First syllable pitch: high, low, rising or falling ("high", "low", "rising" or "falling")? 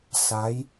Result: rising